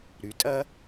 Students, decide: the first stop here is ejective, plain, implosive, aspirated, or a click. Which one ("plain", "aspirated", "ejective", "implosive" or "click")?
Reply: ejective